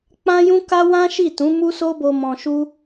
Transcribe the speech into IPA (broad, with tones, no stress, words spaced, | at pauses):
k͡pã˦jũ˦ka˦ wã˦ʃi˦˨ tũ˨˦mu˦so˦bo˧ mɔ̃˧ʃu˦